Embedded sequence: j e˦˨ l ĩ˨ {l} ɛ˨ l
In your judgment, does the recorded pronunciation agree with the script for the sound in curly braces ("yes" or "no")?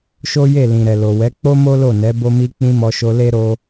no